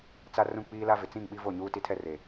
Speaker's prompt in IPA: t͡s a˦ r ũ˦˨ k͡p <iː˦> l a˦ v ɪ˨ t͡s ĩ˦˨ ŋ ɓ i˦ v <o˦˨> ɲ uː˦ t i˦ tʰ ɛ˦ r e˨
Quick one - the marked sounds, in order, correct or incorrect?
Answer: correct, correct

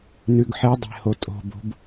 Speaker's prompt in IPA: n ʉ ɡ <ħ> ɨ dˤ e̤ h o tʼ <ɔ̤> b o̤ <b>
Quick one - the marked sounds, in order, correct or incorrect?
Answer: correct, incorrect, correct

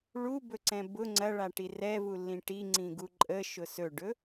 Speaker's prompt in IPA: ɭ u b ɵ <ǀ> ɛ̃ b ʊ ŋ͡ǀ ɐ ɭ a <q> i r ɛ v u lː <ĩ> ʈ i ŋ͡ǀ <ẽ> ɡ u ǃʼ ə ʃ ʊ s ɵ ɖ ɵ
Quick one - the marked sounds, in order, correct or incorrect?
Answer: correct, incorrect, correct, incorrect

